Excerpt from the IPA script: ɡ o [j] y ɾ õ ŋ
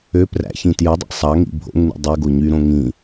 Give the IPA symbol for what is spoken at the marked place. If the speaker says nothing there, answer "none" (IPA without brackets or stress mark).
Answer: ɲ